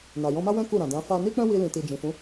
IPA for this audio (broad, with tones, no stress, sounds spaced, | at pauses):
n a˨ j ɔ̃˧ m a˦ w ɛ̃˦ k u˦˨ ɾ ã˨ d ã˨˦ f a˦ n i˦ k͡p ɛ̃˦ w i˧ l ĩ˨ t i˨ d͡ʒ ĩ˨ f ũ˨˦